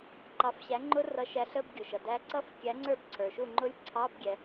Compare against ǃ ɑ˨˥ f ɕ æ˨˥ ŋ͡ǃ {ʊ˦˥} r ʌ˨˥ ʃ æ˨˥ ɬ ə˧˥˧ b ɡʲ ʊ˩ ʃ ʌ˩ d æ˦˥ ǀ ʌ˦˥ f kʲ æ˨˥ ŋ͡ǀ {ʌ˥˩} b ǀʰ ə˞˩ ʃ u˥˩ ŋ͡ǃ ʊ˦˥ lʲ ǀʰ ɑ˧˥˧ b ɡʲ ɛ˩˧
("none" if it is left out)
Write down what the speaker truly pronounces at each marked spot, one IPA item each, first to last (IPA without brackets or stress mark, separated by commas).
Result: ʊ˦˥, ə˞˥˩